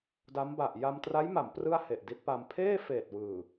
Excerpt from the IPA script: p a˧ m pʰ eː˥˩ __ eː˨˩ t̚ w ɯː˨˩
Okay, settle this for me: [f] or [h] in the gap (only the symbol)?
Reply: f